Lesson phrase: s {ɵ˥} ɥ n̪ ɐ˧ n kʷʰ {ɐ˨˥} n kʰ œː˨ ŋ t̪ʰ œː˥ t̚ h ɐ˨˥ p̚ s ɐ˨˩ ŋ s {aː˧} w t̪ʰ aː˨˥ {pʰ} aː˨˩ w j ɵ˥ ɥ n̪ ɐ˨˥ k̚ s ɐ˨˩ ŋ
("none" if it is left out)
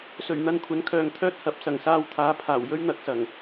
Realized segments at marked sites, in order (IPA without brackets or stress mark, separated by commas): ɵ˨˩, ɐ˨˥, aː˧, pʰ